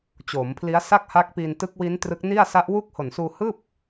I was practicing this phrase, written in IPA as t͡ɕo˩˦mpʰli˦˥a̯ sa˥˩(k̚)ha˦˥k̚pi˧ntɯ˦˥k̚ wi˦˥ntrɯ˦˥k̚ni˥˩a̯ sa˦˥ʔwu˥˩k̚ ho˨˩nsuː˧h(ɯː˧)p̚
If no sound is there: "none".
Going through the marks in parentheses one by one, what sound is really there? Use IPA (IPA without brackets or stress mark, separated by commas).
k̚, ɯː˥˩